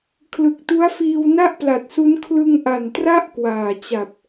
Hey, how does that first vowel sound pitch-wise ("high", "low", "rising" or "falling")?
low